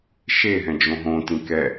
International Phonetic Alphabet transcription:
ʃe ɦɛ̃d͡ʒõɦõ tĩkɛ

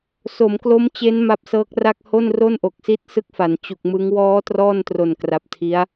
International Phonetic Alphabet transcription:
so˩˦mklo˦˥mt͡ɕe˦˥n ma˦˥p̚sɤː˦˥k̚ra˥˩k̚ ho˥˩n ro˥˩nʔo˨˩k̚si˦˥t̚ sɯ˦˥k̚fa˩˦n t͡ɕu˨˩k̚mɯ˦˥ŋ wɔː˦˥ trɔː˥˩ntro˨˩nkra˨˩p̚tʰi˦˥a̯

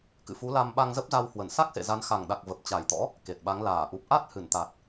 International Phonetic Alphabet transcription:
kɨ̰˧˨fu˨˦ la˧mɓa˧ŋzə˦˥p̚za˧w hwə˧˩nsa˦˥k̚sḛ˧˨ za˨˦nxa˨˩ŋɗa˨˩k̚ və˨˩p̚t͡ɕa˨˩jt̪ɔ̰˧˥ | ke˨˩t̚ɓa˨˦ŋ laː˧˩ʔu˨˩p̚ ʔa˦˥t̚hɨ˧˩nt̪a˨˩t̚

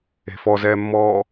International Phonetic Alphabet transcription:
e̤fɔzɛːmːɔː

